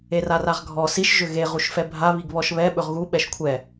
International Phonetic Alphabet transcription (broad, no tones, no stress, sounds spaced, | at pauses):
e r a r a ʁ ɡʱ ɔ s i ʃ ʒ ʏ ɣ e ʁ u ʃ f ɛ bʱ a β i ɡ β ɔ ʃ β ɛ ɓ ɵ ʁ ɣ u ɓ ɛ ʃ kʷʰ ɛ